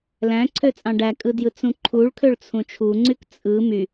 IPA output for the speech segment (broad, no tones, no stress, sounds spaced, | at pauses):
l æ̃ ǀʰ ø t͡sʼ ɑ̃ ɖ æ kʼ ɯ d j ɯ t͡s ũ ǃʰ u ɭ kʰ ø ɭ t͡sʰ ũ t͡ʃʰ u ŋ͡ǀ y k t͡sʼ ɯ m y